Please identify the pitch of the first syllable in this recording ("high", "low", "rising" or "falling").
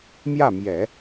falling